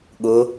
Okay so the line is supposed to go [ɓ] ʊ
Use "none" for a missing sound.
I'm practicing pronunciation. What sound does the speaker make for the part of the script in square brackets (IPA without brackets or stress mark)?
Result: ɠ